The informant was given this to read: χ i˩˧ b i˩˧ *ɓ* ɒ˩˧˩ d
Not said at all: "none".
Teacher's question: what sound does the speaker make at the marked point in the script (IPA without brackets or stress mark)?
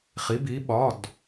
ɓ